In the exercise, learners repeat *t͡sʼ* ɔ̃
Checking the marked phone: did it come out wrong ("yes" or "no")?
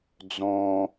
yes